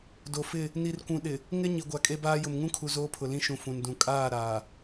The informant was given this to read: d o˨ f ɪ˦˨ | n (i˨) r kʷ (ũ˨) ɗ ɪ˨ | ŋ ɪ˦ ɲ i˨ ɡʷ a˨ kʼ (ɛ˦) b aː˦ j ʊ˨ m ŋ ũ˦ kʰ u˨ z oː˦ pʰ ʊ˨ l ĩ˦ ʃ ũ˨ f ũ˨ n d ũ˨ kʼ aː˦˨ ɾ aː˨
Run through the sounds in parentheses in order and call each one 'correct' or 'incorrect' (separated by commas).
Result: correct, correct, incorrect